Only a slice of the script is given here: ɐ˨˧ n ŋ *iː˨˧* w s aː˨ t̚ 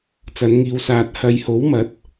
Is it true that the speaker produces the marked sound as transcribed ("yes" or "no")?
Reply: yes